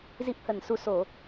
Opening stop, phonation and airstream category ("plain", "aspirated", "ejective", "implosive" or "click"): plain